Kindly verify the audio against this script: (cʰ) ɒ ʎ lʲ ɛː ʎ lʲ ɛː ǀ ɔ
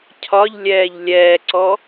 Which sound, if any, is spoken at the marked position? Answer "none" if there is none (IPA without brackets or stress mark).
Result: cʰ